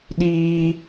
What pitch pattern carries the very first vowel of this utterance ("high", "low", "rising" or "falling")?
high